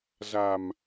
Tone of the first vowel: low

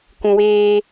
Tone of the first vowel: low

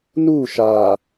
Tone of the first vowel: falling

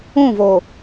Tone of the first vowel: falling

